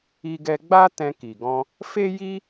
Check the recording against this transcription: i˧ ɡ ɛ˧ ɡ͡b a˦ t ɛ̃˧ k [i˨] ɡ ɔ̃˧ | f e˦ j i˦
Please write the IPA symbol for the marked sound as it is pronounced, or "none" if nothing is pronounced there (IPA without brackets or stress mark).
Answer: i˨